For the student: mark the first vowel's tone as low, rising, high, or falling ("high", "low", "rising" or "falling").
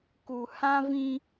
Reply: low